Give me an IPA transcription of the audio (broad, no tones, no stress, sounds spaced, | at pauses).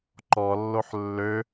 ǃ ɔ lː o ħ lː ø